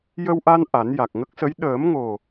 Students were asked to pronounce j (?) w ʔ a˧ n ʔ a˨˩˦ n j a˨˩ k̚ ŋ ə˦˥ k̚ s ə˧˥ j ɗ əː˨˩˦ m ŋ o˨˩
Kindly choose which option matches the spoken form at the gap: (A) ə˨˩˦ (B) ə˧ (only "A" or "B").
B